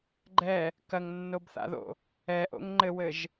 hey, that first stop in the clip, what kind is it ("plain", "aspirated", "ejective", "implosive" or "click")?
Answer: click